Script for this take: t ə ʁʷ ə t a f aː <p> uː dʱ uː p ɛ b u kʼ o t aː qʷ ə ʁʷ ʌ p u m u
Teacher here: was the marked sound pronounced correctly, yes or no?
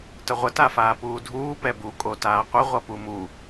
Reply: yes